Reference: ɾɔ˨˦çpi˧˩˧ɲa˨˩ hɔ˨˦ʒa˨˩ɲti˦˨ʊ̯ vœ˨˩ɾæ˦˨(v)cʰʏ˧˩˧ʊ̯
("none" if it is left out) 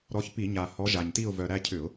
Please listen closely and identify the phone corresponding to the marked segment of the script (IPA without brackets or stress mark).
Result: none